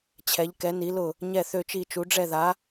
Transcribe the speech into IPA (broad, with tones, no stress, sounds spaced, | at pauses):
t͡ɕʰ ɛ˧˥ ʎ k ɛ˧˥ n i˧˥ l ʊ˥˧ | ɲ ɛ˥˧ θ ø˥˧ t͡ʃ i˥˧ t͡ʃ u˧˥ ɖ͡ʐ ɛ˥˧ ð a˧˥